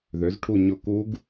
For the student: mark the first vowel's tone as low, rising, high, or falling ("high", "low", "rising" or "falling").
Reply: rising